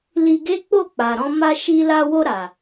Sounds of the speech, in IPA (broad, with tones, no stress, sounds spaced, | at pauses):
l i˧ ɡ e˦ k͡p o˦˨ k͡p a˨ ɾ ɔ̃˧ m a˧ ʃ i˧ l a˧ w o˧ ɾ a˨